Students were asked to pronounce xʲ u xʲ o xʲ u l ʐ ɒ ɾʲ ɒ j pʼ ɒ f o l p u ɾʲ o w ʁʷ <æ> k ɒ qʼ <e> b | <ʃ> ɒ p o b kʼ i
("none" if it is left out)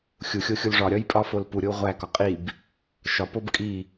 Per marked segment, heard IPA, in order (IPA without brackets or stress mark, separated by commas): æ, i, ʃ